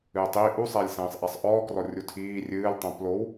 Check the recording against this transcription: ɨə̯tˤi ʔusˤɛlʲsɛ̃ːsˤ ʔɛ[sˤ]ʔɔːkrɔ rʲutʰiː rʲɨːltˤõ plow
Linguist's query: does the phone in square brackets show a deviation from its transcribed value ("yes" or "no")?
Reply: no